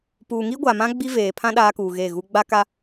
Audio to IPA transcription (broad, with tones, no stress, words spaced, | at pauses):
puː˨ŋi˦ɡʷa˨mã˦ ɡ͡bi˦veː˨pʰã˦ ɗaː˦kuː˨ɣe˦˨ɣu˦ ɡ͡ba˦ka˦